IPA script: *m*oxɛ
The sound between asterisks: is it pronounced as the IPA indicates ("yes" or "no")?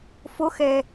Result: no